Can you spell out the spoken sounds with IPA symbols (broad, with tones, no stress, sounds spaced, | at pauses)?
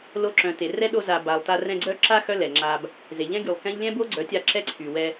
l o˧ ǁ œ̃˨ t e˨ r ɛ˦ ɗ o˧ z a˨ b a˨ lˠ t a˧ r ɛ̃˧ ɡ͡ǀ œ˦ ǁ a˦ x œ˦ l ɛ˨ ŋ͡ǁ a˧ b | z e˨ ʎ ɛ̃˦ ɡ y˨ lˠ k ɛ̃˦ ʎ lʲ ɛ̃˦ b o˦ ɡ͡ǀ œ˨˦ tʲ a˧ ǁ ɛ˦ ǀʰ y˨ w ɛ˧